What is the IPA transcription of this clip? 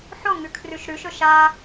ħ o ŋ ʉ kʰ r ʉ ʃ ɾ ʉ ʃ ɵ ʃ a

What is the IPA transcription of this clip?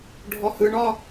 ɖʱ ɔ h ɯ ɳ ɒ

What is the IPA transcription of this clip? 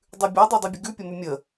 dˤ ʉ bʲ o dˤ o dˤ ɛ bʲ ə ɡ ʉ pʲ ə m ʉ mʲ ə

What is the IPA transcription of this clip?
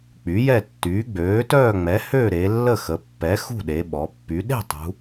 k͡p y˩˥ j ɛ˥˨ tː yː˩˥ ɡ͡b øː˩˥ t œː˥˨ ŋ͡m ɛ˩˥ h ø˥˨ ɾ e˩˧ lː ə˥˨ x ə˩˧ pː ɛ˩˥ x ṳ˥˨ ɗ e˩˧ ɓ ɔ˩˧ pː y˩˧ ɗ e̤˥˨ tˤ ṳ˩˧

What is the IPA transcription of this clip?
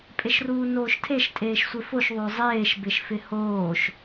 pʼ e ʃ r uː n oː ʃ tʰ e ʃ tʼ eː ʃ sʷ e f o ʃ ðˤ o zˤ eː ʃ b ɪ ʃ f ɪ h oː ʃ

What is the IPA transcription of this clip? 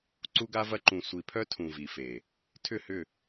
ǀ u˦ ɡ a˦ v ɐ˦ ǃ ũ˨ sʷ i˨ pʰ œ˦ tʰ ũ˨ v i˨ f e˨ | tʰ ʏ˦˨ h ʏ˦˨

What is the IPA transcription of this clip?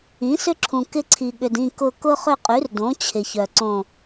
ĩ˩˥ s ʏ˦ ǁʰ ũ˨ k ɪ˦ ǀʰ i˨ ɠ ʏ˨ d ĩ˦˨ k ʊ˦˨ k ʊ˦ χ ʏ˦˨ qʼ y˩˥ r d õ˩˥ t͡ɕʰ ɪ˨ ç œ˨ ǀ õ˦˨

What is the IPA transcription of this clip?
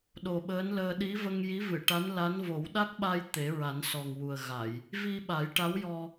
ɗ o˨˩ ɓ əː˧˥ n l əː˧ ɗ i˧˥ v ə˧ ŋ j i˧˥ v ɨ˨˩˨ ʈ a˧˥ n l a˧˥ n v o˨˩˦ w ɗ a˦˥ k̚ ɓ a˧ j t̪ e˨˩˦ ɹ a˨˩˦ n s ɔ˨˩ ŋ w u˨˩ ə̯ ɣ a˨˩˨ j | v i˧ ɓ a˨˩˦ j ʈ a˧˥ w j ɔ˧

